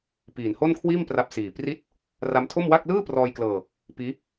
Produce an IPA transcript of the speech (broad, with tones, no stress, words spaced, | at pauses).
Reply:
piː˨˩nho˥˩nkʰwiː˥˩m pra˦˥p̚siː˨˩ pri˥˩t̚ | ra˦˥mtʰo˥˩mwa˥˩k̚ lɯː˥˩prɔː˧jklɤː˧ | piː˦˥